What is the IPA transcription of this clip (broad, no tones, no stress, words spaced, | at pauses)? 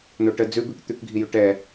noʈə d͡zʉbʉk t̪ʉkɡʱijʉ ʈɛ